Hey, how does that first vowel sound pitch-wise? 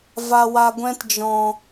low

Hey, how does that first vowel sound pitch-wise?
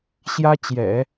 high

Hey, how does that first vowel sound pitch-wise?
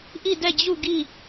falling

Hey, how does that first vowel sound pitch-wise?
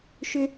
high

